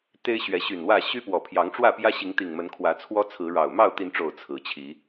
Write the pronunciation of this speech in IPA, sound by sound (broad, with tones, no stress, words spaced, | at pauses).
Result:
t̪e˦ɪ̯ɕɥɛ˨˦ɕy˨˩nwä˥˨ ɕy˦pwɔ˨˩ pʰjɑ˨˦ŋʈ͡ʂwä˥˨pjä˦ ɕi˨˦ŋt̪i˨˩ŋmə˨˦n kʰwä˨˦t͡sʰwɔ˦t͡sʰɹ̩˨˦ɻɑ˨˩ʊ̯ mɑ˥˨ʊ̯t̪i˨˦nʈ͡ʂo˨˩ʊ̯ t͡sʰɹ̩˨˦t͡ɕʰi˨˦